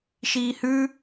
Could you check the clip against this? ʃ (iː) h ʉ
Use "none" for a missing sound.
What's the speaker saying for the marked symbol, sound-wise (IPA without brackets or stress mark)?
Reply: iː